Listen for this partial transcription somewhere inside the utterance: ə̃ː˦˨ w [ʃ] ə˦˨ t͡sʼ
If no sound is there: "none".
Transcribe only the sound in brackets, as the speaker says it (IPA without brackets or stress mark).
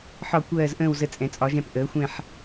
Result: z